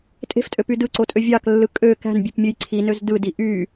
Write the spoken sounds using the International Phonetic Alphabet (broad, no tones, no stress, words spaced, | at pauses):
tʼe̤ftʼøpy dɯǀotʼø vʲɑklːɯ kʼø kæ̤nbʲepmʲɯj ǀʰinøz dɯdi ʔy